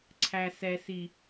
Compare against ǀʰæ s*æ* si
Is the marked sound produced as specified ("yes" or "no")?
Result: no